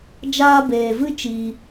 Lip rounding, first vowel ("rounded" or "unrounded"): unrounded